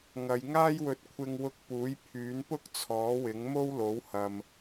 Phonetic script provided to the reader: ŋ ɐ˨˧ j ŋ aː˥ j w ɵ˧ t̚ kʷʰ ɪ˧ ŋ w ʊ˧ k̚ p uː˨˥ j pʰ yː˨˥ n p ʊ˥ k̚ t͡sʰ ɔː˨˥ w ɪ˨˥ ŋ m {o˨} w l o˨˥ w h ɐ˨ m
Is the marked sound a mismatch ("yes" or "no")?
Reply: yes